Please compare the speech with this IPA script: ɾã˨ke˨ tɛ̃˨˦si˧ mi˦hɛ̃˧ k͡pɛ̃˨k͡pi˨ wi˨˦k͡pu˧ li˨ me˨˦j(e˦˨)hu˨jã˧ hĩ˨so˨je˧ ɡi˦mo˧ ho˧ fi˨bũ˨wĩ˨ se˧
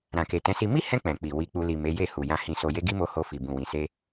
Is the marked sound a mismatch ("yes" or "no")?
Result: no